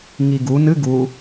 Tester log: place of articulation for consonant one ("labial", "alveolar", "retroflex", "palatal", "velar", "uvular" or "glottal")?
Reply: velar